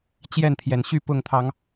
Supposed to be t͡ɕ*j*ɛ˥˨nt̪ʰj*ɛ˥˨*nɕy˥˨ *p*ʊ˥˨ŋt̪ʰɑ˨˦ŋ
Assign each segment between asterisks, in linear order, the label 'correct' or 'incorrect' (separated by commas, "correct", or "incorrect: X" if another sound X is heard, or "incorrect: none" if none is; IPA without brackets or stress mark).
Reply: correct, incorrect: ɛ˨˩, correct